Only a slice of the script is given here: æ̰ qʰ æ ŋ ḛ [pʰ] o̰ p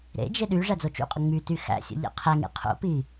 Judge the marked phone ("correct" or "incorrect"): incorrect